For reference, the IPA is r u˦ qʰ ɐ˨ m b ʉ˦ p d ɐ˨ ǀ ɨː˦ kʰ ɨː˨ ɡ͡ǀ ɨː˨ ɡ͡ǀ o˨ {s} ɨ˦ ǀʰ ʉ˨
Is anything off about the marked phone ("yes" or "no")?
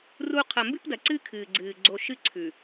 yes